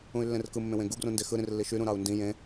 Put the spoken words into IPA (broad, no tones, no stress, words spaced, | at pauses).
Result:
ũy̯lːẽrkɯ mːẽwẽɡu ɡrũndexɯ ɾĩrlːiʃy ɾũɾɑu̯ndĩ jẽ